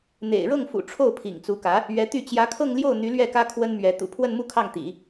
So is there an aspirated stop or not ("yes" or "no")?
yes